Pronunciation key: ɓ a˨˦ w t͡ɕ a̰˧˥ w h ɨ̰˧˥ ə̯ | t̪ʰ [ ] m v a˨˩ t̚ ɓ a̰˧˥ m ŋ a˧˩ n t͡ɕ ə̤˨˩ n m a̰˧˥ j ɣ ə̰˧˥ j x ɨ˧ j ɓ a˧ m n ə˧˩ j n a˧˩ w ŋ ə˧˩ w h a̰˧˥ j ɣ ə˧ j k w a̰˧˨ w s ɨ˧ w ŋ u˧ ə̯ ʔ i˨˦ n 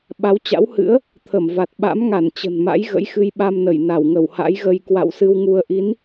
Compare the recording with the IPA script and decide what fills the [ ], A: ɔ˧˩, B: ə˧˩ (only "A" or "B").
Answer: B